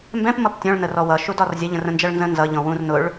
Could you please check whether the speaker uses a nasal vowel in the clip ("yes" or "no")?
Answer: yes